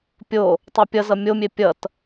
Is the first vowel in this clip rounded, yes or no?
yes